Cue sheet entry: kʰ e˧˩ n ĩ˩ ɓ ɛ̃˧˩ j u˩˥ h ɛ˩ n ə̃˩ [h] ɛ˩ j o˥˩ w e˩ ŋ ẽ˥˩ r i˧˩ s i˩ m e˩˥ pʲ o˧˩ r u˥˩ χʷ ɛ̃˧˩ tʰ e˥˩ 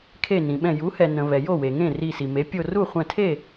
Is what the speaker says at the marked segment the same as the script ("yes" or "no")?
no